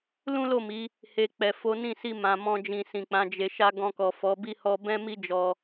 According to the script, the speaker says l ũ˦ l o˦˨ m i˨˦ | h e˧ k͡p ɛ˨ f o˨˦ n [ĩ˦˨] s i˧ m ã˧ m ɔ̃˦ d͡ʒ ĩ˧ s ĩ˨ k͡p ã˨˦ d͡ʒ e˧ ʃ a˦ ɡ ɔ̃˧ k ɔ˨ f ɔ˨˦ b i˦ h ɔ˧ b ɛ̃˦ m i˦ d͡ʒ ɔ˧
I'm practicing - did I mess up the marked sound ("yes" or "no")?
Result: no